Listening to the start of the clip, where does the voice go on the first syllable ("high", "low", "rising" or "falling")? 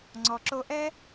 low